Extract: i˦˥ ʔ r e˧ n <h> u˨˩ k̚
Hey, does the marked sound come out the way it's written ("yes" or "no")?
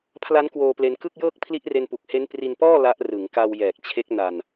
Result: no